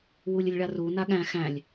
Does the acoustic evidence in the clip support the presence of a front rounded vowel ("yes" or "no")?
no